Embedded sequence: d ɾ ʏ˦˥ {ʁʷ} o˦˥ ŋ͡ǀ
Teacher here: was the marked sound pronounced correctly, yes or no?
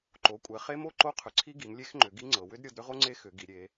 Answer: no